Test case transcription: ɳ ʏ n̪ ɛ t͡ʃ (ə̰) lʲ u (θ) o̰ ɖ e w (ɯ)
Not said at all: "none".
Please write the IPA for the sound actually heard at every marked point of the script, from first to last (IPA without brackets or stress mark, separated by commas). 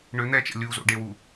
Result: ə̰, z, u